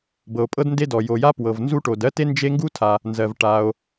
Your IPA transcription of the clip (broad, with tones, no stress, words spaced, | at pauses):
bɤ˩o̯pʼɤ˥dnde˥dɔ˩ jo˩ja˥ pwɤ˩v nzu˥ʈo˩d ɜ˥te˥ nd͡ʒe˥ ŋɡu˥tʰa˩ | nzɜ˩v ʈa˩o̯